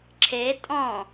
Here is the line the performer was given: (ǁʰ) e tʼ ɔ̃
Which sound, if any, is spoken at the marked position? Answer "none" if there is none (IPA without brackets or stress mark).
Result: ǁʰ